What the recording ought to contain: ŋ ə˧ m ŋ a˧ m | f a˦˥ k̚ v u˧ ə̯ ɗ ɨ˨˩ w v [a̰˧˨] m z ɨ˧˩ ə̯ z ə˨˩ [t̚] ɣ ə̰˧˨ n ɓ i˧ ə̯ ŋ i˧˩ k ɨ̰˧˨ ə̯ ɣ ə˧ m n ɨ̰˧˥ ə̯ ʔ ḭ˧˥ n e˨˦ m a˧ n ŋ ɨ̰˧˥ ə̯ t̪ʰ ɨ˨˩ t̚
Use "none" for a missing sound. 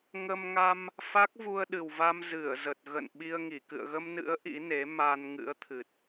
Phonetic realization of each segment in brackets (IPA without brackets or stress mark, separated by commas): a˧, t̚